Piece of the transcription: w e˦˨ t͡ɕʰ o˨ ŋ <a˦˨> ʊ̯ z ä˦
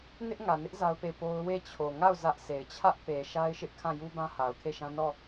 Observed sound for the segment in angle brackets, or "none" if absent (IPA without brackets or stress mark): a˦˨